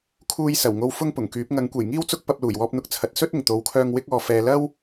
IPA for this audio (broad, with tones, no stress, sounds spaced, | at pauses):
kʰ uː˧ j s ɐ˨˩ w ŋ o˧ w f ʊ˥ ŋ p ʊ˨˩ ŋ k yː˨˥ p̚ ŋ ɐ˨˥ ŋ kʷ e˨˩ j ŋ iː˥ w t͡s ʊ˥ k̚ p ɐ˧ p̚ l uː˨˩ j w ɔː˧ p̚ n̪ ʊ˧ k̚ t͡sʰ ɐ˨˥ t̚ s ɵ˥ t̚ ɪ˨˩ ŋ t̪ o˨˥ w kʰ œː˧ ŋ w ɪ˥ k̚ ɔː˨ f ɛː˨ l ɐ˥ w